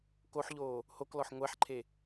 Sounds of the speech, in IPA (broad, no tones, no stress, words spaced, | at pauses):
koħʎoː | hoklɔħ ŋʷɛħǃʰe